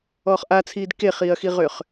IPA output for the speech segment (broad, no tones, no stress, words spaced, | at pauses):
ɔːχʔat͡sʰiːd keχiːɐ̯xiʁʏːχ